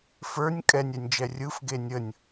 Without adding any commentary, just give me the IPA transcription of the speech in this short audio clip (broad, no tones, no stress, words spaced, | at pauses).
fə˞nʲ kʼɛnʲɛnʲd͡ʒɛ rʲɯfɡe nʲənʲ